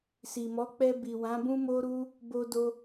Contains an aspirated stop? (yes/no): no